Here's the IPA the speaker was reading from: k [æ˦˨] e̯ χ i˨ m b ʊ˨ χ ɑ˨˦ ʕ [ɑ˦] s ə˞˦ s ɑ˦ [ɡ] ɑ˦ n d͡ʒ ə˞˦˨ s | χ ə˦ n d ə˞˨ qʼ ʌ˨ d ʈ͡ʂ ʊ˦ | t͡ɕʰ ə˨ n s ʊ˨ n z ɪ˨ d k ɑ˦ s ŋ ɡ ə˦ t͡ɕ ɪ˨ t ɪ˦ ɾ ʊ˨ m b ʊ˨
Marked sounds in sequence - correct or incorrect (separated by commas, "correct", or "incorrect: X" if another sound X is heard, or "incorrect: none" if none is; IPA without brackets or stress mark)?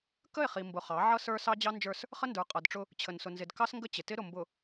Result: incorrect: ə˦˨, incorrect: ʌ˦, incorrect: d͡ʑ